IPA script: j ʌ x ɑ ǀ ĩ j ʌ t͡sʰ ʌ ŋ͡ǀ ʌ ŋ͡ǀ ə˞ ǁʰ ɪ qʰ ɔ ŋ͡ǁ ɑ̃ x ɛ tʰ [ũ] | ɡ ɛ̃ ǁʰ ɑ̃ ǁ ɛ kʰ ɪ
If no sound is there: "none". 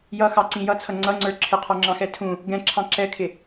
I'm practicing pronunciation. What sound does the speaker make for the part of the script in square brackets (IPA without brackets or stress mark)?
ũ